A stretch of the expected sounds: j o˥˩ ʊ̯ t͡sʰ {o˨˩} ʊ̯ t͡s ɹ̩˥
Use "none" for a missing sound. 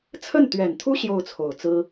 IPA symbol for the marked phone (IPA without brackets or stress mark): o˨˩